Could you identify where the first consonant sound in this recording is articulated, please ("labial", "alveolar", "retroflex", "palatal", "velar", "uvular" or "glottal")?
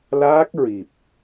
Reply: alveolar